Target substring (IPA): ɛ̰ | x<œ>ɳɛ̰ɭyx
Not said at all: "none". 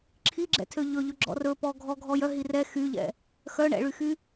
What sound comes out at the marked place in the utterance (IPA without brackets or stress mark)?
œ